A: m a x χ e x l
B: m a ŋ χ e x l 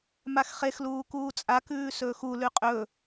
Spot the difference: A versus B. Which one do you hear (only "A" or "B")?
A